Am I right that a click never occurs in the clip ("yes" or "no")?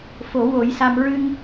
yes